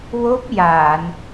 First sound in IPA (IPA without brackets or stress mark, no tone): w